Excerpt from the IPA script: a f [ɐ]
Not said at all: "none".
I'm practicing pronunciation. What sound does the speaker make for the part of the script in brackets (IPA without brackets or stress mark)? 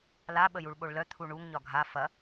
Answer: ɐ